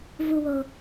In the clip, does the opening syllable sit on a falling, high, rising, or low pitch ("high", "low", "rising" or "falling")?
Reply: low